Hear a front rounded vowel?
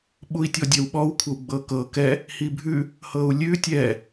no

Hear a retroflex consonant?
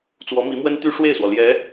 yes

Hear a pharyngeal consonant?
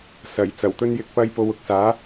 no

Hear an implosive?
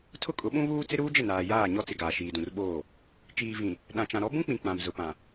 yes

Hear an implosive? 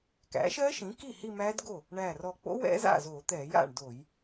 no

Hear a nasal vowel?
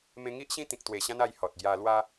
yes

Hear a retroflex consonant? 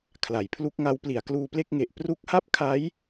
no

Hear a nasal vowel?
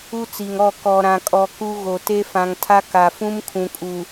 yes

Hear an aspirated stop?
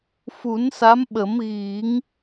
no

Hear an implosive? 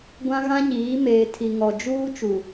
no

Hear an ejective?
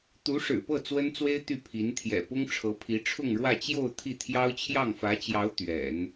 no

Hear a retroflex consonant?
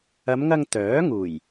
no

